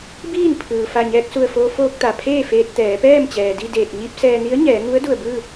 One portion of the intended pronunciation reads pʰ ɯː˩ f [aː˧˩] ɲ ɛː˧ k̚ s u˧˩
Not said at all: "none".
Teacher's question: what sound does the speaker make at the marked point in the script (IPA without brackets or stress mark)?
a˧˩